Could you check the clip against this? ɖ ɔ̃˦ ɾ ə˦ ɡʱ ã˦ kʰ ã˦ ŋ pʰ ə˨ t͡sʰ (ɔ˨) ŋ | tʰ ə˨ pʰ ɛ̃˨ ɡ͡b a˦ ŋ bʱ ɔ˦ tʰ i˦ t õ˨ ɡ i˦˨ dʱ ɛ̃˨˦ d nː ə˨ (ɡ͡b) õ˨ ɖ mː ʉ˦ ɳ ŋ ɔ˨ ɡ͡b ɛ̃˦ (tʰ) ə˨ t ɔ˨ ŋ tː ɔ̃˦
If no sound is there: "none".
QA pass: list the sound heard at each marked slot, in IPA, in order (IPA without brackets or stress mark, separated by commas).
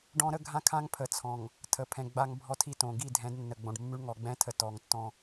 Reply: ɔ̃˨, ɡ͡b, tʰ